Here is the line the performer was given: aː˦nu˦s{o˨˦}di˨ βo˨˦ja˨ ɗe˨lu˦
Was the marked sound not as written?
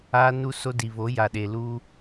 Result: yes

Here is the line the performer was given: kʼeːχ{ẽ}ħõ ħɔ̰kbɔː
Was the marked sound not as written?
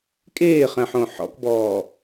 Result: yes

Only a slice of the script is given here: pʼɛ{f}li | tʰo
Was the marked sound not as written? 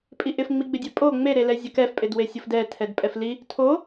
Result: no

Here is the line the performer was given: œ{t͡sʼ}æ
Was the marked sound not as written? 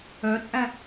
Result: no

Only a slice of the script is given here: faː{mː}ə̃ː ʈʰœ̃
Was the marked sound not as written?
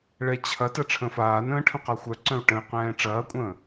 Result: yes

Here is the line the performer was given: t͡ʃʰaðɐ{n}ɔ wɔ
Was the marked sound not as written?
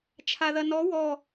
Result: no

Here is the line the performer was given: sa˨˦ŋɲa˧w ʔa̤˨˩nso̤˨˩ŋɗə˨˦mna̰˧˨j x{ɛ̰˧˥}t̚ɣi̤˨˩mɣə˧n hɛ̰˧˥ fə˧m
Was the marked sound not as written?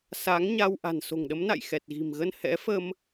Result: yes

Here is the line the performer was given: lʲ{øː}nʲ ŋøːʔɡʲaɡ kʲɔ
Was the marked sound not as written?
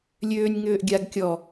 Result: no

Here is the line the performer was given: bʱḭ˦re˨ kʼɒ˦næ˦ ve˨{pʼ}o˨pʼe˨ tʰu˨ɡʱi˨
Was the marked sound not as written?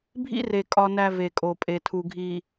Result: yes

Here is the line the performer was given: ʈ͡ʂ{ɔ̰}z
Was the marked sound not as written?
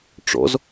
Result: no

